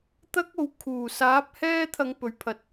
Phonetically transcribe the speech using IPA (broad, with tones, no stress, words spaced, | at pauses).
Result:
t̪ɐ˥k̚o˨w kʰuː˨˩ saː˨˥p̚ hɛː˥t̪ʰɐ˨˧ŋ pɵ˨ɥpʰɐ˧t̚